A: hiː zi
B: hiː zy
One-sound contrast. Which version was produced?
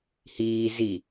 A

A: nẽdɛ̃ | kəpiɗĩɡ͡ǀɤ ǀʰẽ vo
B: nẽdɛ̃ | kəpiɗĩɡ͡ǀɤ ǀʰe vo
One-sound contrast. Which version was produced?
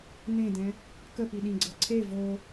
B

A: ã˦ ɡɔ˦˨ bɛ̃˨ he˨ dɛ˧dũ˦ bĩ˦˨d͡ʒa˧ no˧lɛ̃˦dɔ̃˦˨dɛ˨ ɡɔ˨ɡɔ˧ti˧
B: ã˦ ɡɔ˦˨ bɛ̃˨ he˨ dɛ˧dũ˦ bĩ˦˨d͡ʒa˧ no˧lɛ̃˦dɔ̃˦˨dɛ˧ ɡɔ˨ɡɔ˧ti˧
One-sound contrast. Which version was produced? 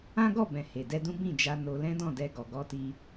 B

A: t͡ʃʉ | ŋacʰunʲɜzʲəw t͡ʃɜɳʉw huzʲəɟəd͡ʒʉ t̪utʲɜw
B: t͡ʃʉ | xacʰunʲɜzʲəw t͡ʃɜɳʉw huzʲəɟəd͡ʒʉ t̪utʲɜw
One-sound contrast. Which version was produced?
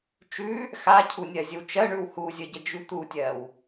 B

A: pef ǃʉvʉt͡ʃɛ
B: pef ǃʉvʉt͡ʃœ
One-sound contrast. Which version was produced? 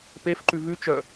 B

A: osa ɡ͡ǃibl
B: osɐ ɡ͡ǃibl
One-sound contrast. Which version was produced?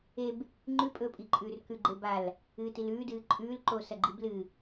B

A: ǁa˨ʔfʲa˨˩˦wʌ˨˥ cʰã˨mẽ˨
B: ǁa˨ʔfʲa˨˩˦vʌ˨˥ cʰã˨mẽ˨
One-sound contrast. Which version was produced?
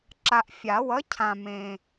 A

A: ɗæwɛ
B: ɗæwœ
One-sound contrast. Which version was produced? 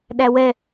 A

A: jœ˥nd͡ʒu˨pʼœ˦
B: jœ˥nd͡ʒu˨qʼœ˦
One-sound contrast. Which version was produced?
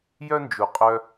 B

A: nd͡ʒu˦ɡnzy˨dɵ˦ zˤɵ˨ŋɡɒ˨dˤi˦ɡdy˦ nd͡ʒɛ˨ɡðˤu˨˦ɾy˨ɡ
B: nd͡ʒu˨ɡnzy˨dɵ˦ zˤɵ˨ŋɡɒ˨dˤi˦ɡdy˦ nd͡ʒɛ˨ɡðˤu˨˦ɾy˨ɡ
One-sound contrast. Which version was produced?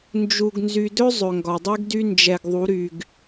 B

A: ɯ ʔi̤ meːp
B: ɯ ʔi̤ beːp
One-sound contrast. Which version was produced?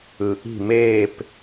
A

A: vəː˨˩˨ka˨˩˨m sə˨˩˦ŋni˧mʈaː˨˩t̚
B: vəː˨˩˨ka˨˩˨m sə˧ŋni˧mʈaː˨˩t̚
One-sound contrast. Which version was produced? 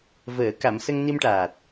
B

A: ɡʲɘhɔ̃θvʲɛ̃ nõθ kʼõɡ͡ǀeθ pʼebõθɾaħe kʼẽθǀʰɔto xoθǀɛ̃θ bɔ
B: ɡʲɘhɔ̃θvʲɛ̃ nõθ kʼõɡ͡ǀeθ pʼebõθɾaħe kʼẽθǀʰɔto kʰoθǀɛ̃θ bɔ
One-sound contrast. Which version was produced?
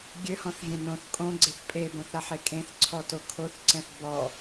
B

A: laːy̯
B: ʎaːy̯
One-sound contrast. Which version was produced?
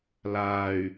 A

